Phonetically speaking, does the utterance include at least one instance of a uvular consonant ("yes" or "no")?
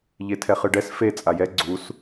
yes